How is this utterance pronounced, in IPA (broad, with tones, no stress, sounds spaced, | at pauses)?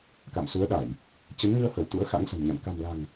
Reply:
k a̰˧˨ m s u˨˦ ə̯ ɗ a˧˩˨ j | t͡ɕ ə˨˦ n ŋ ɨ˧ ə̯ h ə˧˩ w t̪ ṵ˧˥ ə̯ x a̰˧˥ ŋ s ə̤˨˩ m ɲ a̰˧˨ n k a̤˨˩ m l a̤˨˩ ŋ